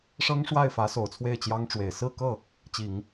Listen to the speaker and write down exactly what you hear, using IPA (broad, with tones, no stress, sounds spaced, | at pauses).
ʂ ɤ˥ ŋ ʂ w a˥˩ ɪ̯ f ä˧˥ s o˨˩ ʊ̯ t͡sʰ w e˥˩ ɪ̯ t͡ɕ j ɑ˥ ŋ ʈ͡ʂ w e˨˩ ɪ̯ s ɹ̩˥˧ k ɤ˥˩ | t͡ɕ i˨˩˦ ŋ